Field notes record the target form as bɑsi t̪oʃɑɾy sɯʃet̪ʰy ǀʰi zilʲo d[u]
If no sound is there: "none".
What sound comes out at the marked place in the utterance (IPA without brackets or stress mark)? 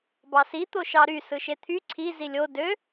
ø